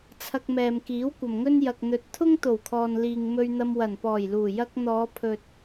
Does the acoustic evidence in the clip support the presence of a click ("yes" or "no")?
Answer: no